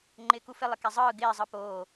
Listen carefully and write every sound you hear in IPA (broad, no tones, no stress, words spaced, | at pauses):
ŋ͡ǃɪːkufɪ lˠɪkezˤɯː ɡɪː zˤɯpoː